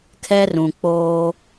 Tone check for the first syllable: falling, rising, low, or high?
high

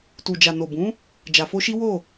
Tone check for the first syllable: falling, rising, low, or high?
low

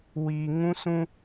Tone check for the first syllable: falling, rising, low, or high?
low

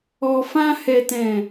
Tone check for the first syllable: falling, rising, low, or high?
low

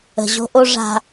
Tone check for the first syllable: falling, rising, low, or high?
low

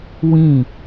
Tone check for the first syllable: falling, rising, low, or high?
falling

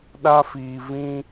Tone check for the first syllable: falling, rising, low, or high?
high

